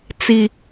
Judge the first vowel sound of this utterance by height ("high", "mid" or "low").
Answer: high